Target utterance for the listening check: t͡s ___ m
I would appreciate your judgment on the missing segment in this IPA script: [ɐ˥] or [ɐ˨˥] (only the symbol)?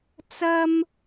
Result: ɐ˥